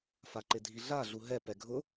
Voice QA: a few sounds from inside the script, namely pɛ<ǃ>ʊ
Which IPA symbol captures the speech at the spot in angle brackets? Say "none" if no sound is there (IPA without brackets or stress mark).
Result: ɡʱ